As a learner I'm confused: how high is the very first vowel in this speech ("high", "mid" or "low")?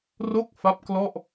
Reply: mid